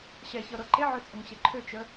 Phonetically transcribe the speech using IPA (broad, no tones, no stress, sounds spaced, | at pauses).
ɕ ɛ ç ɤ ɾ ɤ ǃ e ʕ ø t͡sʼ ɤ ŋ ɕ e ǃʰ ø t͡ʃ ə